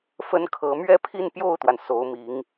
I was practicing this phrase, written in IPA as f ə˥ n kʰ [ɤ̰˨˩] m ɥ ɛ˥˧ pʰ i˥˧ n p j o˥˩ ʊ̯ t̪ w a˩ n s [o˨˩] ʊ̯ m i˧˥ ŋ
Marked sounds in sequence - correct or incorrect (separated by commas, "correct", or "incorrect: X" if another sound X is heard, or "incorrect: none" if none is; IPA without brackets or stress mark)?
incorrect: ɤ˧˥, incorrect: o˧˥